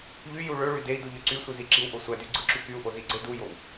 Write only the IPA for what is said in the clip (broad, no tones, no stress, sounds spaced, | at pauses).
ʎ y j u ɭ ø ɭ y d e i̯ d u ʎ ø ǀ y sʷ ɯ z i ǁ i w ʔ o sʷ æ d y ɡ͡ǀ ɯ ǁ y k y u̯ ʔ o z i ɡ͡ǀ e d u j o w